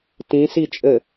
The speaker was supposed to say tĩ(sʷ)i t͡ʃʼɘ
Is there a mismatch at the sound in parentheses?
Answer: yes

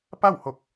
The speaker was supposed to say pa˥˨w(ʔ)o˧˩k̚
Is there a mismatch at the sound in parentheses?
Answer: yes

